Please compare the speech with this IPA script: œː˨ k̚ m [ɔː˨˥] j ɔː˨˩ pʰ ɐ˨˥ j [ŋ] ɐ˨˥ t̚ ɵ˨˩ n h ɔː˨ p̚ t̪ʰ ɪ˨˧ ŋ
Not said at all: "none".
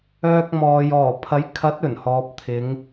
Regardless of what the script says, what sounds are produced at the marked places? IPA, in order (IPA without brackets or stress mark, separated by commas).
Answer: ɔː˨, kʰ